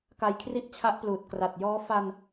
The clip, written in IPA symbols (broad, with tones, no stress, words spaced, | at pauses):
ka˧jkʰri˥˩ʔt͡ɕʰa˦˥ʔpluː˨˩t̚ kra˨˩t̚jɔː˦˥ fa˧n